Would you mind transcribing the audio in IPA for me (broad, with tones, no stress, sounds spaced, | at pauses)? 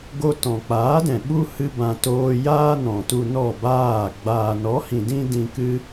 ɡ o˦ t ɔ̃˨ k͡p aː˨˦ d ɛ̃˨ ɓ u˦ h ɨ˦ b ã˧ t oː˧ j aː˦ n ɔ̃˨ t u˧ n ɔ˦˨ b aː˦˨ ɡ͡b aː˨ n ɔ˨˦ h ĩ˨ d ĩ˧ d ĩ˧ k ɨ˦